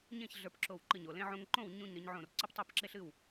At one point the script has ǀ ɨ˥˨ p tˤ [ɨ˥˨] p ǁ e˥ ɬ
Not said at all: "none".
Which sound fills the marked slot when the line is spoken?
e˥˨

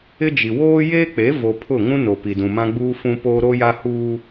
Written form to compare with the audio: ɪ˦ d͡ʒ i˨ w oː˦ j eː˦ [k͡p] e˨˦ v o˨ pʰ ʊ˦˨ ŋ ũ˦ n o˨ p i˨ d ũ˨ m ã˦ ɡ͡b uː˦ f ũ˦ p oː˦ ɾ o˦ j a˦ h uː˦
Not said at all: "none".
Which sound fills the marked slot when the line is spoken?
k͡p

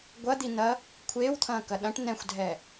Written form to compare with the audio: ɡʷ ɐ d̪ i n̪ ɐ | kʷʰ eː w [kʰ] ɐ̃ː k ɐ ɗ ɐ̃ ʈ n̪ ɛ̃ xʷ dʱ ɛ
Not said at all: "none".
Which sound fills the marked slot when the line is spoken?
t̪ʰ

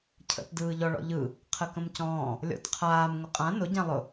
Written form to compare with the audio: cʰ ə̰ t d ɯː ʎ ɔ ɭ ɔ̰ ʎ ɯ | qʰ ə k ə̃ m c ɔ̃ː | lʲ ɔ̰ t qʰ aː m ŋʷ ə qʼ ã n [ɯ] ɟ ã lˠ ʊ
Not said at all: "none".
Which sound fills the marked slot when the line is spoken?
ʊ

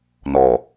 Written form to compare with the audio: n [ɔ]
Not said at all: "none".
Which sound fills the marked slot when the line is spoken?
ɔ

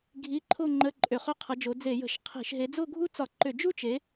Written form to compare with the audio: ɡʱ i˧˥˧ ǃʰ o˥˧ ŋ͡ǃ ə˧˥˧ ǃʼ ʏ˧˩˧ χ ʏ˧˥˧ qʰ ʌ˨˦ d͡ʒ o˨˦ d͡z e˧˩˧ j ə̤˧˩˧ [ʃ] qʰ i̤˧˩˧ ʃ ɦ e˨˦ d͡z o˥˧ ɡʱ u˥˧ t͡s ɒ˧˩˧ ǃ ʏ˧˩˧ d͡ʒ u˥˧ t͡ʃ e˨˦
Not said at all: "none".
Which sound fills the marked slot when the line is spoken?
ʃ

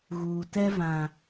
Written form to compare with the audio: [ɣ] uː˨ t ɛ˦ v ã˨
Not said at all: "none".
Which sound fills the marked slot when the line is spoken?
ɣ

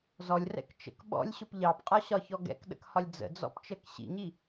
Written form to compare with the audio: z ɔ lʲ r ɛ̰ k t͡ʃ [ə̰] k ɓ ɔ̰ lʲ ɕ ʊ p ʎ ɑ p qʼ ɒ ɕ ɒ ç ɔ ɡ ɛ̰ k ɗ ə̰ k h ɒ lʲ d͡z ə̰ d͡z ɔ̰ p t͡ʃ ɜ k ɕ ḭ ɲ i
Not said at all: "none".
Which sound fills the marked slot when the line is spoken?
ə̰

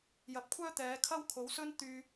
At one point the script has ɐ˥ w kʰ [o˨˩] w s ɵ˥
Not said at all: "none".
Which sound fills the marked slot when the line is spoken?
o˨˥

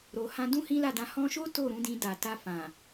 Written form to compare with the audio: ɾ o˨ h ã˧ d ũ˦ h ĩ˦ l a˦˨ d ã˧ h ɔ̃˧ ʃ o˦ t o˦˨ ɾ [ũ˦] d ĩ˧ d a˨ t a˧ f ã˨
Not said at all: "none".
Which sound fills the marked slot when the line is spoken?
ũ˨˦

